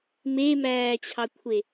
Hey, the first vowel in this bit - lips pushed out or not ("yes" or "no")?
no